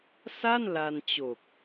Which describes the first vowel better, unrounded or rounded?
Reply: unrounded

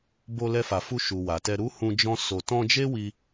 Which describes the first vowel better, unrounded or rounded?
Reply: rounded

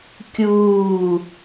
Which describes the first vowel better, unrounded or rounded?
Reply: rounded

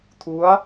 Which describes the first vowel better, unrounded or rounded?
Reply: rounded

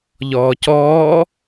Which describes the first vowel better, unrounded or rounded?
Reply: rounded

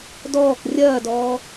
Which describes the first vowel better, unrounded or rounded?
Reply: rounded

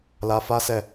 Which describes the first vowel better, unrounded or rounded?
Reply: unrounded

